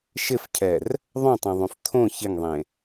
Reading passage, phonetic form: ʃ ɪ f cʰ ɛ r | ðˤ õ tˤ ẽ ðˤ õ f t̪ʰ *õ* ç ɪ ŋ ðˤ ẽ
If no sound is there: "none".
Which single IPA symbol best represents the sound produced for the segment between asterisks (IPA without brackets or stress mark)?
õ